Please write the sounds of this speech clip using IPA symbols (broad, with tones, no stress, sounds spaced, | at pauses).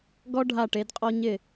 ɡ ɔ˥ ɖʱ a˦˨ ʈ e˨˦ d qʼ ɔ˥ ɲ ɪ˦˨